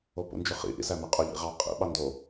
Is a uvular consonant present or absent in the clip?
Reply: present